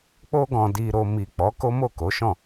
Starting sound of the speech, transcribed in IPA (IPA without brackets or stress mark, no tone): k͡p